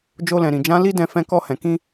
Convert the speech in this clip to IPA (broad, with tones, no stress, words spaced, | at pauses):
d͡ʒo˧lɛ̃˨ɾĩ˨ d͡ʒã˨˦ li˦ dɛ̃˦˨ fɛ̃˧kɔ˧hɛ̃˨ kĩ˧